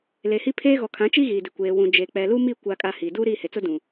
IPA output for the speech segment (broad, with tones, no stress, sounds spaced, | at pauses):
l e˨ h i˦ pʰ eː˦ ɣ ɔ˨ kʰ ã˨˦ t͡ʃ i˦ ɣ i˨ d ɪ˨ kʷ eː˨ w ũ˨ d͡ʒ eː˨ k͡p ɛ˨ l u˦ m i˦˨ kʷ a˦ kʼ a˦ h i˨ d uː˦ ɾ iː˦˨ h e˨ t͡s ʊ˦ d ũ˨